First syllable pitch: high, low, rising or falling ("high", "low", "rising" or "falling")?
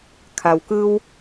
low